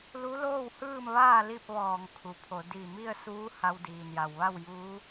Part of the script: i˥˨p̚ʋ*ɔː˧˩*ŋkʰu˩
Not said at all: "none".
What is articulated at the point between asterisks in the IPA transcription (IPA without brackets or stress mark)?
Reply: ɔː˧˩